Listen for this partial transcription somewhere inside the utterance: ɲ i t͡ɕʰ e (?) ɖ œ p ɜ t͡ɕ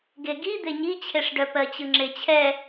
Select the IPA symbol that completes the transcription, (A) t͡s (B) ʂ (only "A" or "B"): B